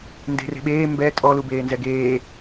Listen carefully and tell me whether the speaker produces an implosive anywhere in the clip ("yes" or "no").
yes